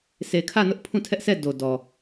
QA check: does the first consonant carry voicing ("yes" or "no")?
no